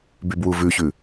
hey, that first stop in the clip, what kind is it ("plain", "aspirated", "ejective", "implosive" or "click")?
plain